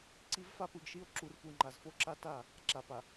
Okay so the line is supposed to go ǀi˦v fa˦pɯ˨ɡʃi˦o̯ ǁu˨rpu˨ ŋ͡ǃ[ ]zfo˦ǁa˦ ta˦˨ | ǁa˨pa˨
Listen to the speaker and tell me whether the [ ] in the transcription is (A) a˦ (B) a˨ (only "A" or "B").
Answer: B